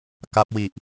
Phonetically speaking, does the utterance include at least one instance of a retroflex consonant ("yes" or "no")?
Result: no